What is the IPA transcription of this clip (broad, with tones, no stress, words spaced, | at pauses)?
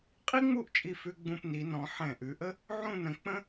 qʼi˥ŋ͡mu˥˧ʔt͡ʃʼi˧˩ fʉ˧ ɡ͡bũ˧pni˩˧nɔ̃˩˧ ħɛ̃˧˩ʔʉ˩˧ʔə˥ | ʕũ˥˧nə̃˩˧ k͡pə̃˥